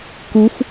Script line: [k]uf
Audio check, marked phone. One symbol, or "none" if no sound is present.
k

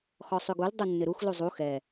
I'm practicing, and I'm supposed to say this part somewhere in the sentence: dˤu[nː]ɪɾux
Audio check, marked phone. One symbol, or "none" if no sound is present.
nː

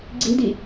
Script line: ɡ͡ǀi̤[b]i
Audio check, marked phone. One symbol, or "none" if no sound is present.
d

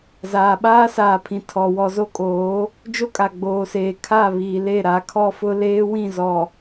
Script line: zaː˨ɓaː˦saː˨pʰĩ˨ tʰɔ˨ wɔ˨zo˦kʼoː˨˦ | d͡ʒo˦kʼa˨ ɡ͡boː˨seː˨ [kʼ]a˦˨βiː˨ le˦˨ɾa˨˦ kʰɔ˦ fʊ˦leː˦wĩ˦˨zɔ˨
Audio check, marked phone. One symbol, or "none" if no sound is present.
kʰ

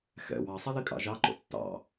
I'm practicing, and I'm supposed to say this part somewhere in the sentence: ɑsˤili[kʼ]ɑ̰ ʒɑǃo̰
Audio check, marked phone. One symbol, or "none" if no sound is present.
kʼ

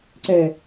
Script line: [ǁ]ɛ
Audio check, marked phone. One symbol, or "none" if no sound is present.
ǀ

